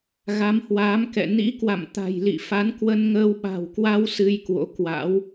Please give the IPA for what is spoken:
ɣa˨˦mhwaː˨˦mkɛ̰˧˨ nḭ˧˥kwa̰˧˨mt̪a̤˨˩jlḭ˧˨ fa˨˦nkwə˧nŋəː˧w ɓa̤˨˩wkwa˧w sɨ˧jkwo̰˧˥kwa̰˧˥w

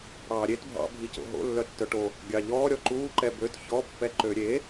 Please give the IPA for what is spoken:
ɽɑːɾʲet bʱɑ̰bʱico̰ ɦo̰lːœtːœ ʈo | ɡʲɑʎɔː ɾʲɔǃuːǃɛ bøt çɔpːɛ ǃøɾʲe

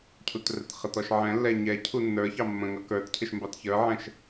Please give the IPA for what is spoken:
cʰutrɛtχətɔʃ ʕɛ̃lːɛ ɲɛ cʰunːə˞çɑ mːə̃ŋʌ kə˞tcʰɪʃ mbɑtçə˞ʕɛ̃ʃ

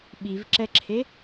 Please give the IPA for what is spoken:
ɓivǁɛǁʰe

